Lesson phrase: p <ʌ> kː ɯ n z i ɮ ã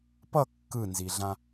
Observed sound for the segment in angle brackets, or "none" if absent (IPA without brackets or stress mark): ʌ